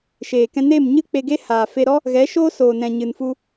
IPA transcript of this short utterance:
ʃ eː˨ k ɛ̃˧ n eː˦˨ m ɲ ɨ˦ k͡p e˧ ɡ e˦ h aː˨ f e˧ ɾ ɔ˦ | ɣ ɛ˨˦ ʃ oː˦ s oː˨ n ɛ̃˨ ɲ ɨ˨ n f u˧

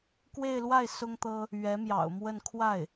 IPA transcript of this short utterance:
k w e˥˧ ɪ̯ l w a˥˩ ɪ̯ s ʊ˥ ŋ t̪ ɤ˥ | ɥ ɛ˧˥ m j ɑ̰˨˩ ʊ̯ m w ə˥˧ n kʰ w a˥˩ ɪ̯

